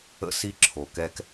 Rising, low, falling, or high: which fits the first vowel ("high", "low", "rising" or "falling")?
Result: high